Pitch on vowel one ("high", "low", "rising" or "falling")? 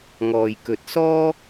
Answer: low